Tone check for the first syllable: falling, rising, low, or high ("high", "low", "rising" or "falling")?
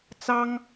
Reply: high